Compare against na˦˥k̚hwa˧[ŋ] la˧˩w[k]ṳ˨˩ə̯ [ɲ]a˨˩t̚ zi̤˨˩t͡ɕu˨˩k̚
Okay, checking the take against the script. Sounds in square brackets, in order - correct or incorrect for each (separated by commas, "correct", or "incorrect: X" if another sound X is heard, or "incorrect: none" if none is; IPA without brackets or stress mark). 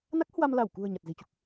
incorrect: m, correct, correct